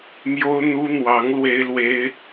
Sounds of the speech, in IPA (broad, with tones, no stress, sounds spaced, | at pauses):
m j o˥ ʊ̯ n̪ u˥ n̪ w ɑ˧˥ ŋ l w e˥ ɪ̯ l w e˥ ɪ̯